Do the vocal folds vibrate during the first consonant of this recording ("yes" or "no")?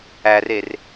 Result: yes